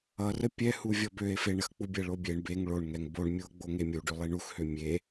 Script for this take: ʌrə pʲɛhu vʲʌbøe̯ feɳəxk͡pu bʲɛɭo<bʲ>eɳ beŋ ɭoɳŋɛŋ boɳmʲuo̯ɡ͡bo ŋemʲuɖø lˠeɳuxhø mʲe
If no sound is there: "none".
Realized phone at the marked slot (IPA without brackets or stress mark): bʲ